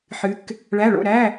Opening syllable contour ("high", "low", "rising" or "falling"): rising